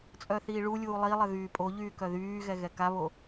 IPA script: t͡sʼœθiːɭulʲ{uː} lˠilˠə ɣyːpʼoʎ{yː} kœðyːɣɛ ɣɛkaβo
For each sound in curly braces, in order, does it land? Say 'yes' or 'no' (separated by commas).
yes, yes